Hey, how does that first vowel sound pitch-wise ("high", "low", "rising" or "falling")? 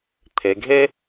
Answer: low